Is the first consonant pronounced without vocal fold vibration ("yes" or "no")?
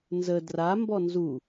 no